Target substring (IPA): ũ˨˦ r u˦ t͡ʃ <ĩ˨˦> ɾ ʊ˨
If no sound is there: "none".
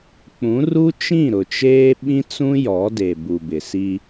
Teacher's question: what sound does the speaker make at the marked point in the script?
ĩ˦˨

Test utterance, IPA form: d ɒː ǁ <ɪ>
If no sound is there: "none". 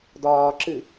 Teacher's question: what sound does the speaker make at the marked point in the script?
ɨ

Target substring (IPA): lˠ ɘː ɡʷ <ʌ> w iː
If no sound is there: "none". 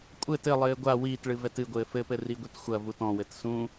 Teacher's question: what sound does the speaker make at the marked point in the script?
a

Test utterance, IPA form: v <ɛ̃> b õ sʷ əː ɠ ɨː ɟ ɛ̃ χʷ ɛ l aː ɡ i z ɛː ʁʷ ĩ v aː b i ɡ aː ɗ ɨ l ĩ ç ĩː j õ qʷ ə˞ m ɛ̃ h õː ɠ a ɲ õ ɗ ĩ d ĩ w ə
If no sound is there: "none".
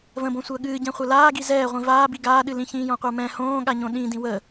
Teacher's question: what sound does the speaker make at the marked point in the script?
ə̃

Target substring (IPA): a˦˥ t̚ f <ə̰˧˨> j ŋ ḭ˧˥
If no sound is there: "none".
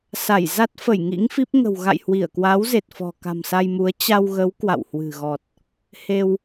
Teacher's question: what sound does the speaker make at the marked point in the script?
ə˧˩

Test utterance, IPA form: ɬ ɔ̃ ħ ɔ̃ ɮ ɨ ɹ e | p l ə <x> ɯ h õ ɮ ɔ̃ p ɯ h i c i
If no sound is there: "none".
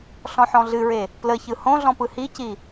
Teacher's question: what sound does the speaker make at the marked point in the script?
ç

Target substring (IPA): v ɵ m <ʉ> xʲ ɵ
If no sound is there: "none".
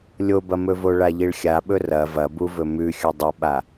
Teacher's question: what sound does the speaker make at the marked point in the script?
ʉ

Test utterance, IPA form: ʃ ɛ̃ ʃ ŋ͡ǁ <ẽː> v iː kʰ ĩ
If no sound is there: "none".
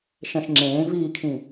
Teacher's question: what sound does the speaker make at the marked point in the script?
ẽː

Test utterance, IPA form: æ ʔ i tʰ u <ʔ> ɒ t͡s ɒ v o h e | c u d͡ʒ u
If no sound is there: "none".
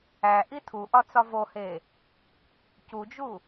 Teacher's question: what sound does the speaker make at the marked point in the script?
ʔ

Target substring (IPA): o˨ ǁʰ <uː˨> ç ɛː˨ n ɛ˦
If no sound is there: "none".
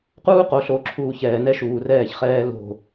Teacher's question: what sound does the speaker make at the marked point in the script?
uː˨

